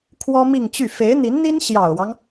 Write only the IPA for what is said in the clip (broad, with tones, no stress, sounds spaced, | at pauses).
kʰ w ɔ˥ m i˥˧ ŋ t͡ɕ y˥˩ f e˧˥ ɪ̯ n̪ i˧˥ n n̪ i˥ n ɕ j ɑ˨˩ ʊ̯ w ɑ˦ ŋ